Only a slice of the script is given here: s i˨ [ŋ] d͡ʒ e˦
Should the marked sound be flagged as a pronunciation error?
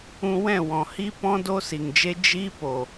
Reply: no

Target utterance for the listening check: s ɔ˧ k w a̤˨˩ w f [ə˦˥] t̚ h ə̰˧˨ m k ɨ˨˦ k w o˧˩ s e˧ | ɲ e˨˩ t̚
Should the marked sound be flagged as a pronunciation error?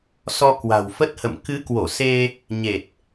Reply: no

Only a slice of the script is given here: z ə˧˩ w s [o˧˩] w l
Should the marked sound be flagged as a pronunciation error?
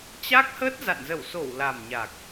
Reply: no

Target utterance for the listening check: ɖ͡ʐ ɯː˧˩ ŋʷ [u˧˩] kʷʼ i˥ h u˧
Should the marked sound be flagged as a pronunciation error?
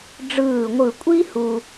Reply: yes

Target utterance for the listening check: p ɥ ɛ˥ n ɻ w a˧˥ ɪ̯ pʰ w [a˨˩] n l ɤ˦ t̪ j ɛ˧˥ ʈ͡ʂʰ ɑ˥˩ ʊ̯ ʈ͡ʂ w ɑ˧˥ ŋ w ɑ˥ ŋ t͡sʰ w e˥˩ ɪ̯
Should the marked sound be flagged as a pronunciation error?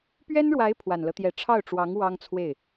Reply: no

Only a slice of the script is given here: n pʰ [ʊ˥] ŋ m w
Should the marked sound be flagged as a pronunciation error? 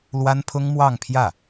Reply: no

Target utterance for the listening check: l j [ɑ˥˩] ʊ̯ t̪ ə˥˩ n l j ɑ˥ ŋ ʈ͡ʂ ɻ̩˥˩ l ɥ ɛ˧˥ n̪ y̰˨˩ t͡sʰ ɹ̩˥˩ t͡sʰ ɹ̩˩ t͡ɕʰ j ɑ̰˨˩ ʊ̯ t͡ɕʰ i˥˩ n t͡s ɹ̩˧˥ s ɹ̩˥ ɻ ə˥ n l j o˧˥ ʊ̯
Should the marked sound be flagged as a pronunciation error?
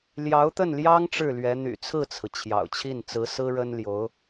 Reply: yes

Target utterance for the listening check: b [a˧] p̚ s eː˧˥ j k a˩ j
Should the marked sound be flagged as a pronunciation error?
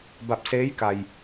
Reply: yes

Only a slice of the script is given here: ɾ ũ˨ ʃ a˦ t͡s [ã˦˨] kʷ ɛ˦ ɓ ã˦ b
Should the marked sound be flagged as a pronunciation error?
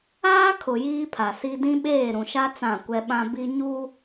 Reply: no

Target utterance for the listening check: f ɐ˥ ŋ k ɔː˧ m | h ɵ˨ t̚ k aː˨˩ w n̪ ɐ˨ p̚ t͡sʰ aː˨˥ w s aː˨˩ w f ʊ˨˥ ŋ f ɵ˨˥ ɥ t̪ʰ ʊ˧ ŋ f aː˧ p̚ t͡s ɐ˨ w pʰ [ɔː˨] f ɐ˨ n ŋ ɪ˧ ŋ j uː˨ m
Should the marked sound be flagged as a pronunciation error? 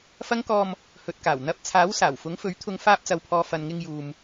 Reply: no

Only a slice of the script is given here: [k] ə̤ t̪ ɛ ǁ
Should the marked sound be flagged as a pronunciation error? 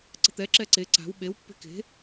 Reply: yes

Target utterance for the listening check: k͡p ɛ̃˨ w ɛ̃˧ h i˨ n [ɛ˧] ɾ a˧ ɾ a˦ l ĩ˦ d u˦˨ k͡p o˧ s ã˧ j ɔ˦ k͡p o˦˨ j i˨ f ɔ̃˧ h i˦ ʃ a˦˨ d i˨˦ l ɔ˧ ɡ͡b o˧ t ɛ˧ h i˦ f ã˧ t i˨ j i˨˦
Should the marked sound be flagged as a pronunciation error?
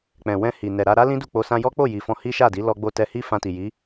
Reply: yes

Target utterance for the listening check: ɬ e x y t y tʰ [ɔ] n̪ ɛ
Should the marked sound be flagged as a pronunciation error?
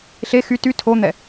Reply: yes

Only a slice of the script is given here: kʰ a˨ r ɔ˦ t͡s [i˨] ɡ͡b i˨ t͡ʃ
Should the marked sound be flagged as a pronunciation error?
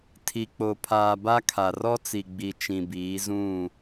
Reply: no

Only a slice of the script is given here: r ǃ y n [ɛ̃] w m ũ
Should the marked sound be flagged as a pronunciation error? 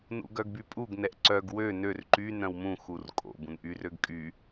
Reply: yes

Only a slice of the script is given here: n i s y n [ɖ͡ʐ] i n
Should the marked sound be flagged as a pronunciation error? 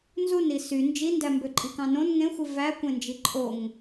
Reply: yes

